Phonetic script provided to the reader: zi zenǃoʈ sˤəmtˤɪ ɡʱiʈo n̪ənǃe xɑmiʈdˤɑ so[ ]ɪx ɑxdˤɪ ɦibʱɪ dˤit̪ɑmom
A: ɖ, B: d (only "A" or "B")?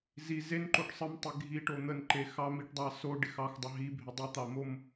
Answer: A